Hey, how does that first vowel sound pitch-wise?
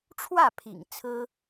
falling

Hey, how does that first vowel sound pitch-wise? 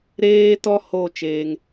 high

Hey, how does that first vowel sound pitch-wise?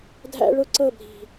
high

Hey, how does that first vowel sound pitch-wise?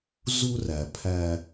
high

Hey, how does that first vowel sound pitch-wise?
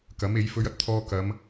rising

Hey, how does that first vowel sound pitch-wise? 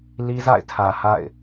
high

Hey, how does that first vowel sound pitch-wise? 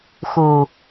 low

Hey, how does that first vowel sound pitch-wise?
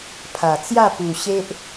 low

